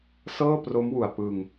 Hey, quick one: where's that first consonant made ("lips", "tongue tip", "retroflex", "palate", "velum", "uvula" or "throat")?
tongue tip